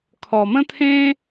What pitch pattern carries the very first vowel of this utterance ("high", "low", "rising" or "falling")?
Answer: low